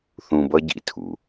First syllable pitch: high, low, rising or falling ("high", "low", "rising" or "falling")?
low